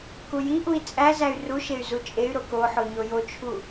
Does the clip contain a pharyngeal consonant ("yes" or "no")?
yes